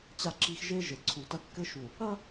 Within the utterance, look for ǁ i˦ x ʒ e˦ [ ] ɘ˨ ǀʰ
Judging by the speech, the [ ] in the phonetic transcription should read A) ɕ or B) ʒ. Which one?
B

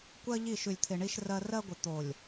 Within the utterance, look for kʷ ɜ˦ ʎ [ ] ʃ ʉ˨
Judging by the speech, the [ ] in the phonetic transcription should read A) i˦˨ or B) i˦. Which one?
A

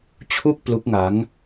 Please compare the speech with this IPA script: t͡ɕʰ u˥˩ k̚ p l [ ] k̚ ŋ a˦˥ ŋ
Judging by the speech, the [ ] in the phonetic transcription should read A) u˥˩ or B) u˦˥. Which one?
B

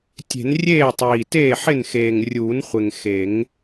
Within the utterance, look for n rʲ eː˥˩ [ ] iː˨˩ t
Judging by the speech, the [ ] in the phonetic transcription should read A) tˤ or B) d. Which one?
A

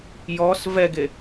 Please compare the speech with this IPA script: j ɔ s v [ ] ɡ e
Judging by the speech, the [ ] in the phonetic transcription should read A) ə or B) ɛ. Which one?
B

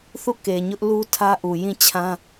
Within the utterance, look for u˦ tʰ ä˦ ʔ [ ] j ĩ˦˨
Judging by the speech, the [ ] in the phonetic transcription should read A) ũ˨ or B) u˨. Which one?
B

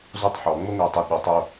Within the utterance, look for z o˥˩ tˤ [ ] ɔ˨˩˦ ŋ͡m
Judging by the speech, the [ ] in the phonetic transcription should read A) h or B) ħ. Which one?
B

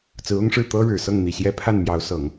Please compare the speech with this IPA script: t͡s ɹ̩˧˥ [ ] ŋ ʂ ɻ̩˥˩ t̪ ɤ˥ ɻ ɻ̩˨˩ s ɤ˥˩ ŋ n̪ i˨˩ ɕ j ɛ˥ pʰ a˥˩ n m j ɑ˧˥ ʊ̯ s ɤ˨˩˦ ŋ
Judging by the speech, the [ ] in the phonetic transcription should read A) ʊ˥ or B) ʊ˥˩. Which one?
A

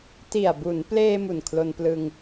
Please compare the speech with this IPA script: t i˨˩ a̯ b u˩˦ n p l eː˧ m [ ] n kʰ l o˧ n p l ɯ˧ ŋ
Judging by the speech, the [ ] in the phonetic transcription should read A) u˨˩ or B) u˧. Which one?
A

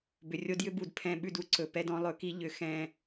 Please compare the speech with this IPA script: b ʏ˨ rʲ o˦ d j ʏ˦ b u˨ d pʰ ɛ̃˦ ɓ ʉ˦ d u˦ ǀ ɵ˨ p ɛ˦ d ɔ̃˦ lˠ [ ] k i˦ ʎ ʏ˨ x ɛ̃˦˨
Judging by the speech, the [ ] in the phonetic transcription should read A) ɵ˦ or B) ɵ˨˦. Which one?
B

